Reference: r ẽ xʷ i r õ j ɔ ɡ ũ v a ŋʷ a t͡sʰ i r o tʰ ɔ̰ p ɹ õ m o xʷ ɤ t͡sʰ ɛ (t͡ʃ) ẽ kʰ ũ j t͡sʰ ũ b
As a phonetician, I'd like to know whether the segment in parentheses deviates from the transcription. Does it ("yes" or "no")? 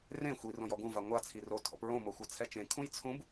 no